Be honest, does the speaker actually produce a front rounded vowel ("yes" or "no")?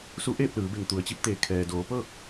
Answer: no